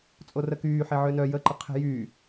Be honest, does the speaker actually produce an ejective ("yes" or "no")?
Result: yes